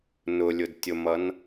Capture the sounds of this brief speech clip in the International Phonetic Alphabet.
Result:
n ʊ lʲ ʊ d tʲ o m ʌ n

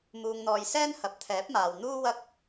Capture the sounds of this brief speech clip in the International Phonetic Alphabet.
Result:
m uː˧ ŋ n̪ ɔː˧ j s ɛː˥ n h ɐ˨˥ p̚ t̪ʰ ɛː˨˥ p̚ m aː˨ w n̪ uː˥ w ɐ˥ k̚

